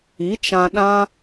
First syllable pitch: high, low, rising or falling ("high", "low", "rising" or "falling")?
rising